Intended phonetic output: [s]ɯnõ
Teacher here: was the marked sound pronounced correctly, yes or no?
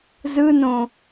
no